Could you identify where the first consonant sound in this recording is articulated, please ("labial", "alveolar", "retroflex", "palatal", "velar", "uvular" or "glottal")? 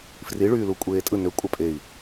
labial